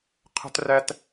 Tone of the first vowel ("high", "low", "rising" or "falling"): high